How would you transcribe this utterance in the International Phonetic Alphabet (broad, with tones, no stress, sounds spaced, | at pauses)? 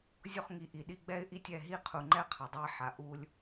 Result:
zʲ o˦ χ ŋ i˨ ʔ i˨ ɗ i˦ ɡ͡b ɛ˦ ɪ̯ ʔ i˦ tʲ ɛ˦˨ ɦ i˦ qʰ u˨ ŋ͡ǃ ɛ˦ qʰ ʌ˨ dˤ ɛ˦ ħ a˨ ʔ u˦ lʲ